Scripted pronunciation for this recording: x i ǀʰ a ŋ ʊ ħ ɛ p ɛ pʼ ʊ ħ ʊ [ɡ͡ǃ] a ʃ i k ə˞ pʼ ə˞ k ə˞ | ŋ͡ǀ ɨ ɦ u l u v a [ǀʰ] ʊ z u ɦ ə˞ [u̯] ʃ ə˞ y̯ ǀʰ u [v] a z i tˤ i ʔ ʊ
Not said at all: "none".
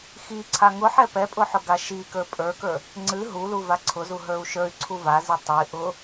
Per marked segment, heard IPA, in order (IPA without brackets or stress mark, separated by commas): ɡ, ǀʰ, u̯, v